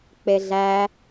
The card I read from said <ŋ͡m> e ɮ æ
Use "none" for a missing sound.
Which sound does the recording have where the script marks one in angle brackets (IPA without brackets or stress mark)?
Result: k͡p